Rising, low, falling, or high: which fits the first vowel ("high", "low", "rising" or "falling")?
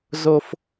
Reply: high